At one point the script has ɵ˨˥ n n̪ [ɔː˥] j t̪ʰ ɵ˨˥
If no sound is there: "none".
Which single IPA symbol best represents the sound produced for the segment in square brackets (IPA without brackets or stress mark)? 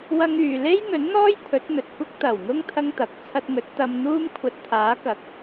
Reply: ɔː˥